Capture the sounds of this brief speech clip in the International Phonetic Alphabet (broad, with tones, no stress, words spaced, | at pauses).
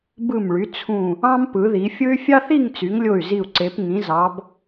bɯ˧˩mɭy˩˧ t͡sʰũ˧˩ | ɑ̃˥mpɯ˩˧ði˩˧fʲɯ˥y̯ fʲɑ˥θi˥˧ŋt͡sy˩˧ŋlʲo˧˩y̯ zi˧˩u̯ǀe˩˧p ŋĩ˩˧zɑ˩˧b